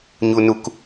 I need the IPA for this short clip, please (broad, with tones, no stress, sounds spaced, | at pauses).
ɲ u˧ n u˧ k